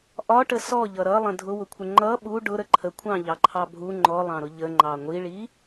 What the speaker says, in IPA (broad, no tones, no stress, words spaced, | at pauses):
ʔɒʈə sɔʎʌ ɾʌlˠə̃ dʱʊwʊkʷʰə ŋ͡ǃʌ ɓu ɖʊɾə ǃʰəkʷʰɑ̃ʎɑǃʰɑ bʱu ŋ͡ǃɔlˠɑ̃ɾʊ ʎəŋ͡ǃɑ ŋʷiɭi